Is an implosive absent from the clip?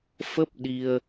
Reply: no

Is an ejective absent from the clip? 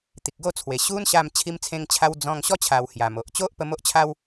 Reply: yes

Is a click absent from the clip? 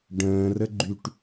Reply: no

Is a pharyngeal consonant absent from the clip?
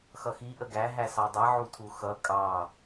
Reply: no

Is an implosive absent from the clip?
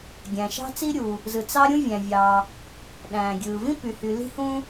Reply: no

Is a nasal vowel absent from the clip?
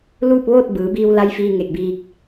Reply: yes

